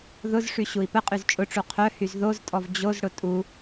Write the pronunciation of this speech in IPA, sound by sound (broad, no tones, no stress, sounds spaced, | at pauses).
ð ʊ z ʂ y ɕ u i̯ p ə qʼ y z t͡ʃʼ ʊ ʈ͡ʂ u qʰ œ h y z ð o z tʼ ɔ v d͡ʑ o z ɽ ʊ tʼ u